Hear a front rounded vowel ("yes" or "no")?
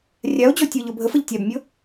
no